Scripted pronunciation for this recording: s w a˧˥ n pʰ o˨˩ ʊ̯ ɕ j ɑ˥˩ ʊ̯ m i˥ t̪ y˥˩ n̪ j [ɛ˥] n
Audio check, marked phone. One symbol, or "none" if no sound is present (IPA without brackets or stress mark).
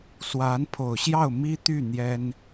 ɛ˥